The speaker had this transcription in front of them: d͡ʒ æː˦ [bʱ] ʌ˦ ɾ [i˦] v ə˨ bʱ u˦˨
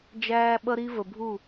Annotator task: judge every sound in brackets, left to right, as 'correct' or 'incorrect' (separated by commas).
incorrect, correct